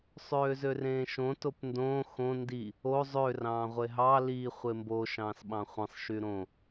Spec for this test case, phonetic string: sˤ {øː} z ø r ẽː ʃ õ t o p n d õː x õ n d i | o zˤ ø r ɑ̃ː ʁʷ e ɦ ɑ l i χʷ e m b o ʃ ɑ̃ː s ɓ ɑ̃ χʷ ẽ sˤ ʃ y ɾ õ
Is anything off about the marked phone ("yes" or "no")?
no